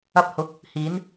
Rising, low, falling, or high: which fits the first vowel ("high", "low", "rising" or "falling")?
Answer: low